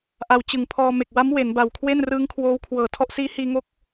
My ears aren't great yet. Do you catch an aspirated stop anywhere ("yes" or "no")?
yes